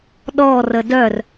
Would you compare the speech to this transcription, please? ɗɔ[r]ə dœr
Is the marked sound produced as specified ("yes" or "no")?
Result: yes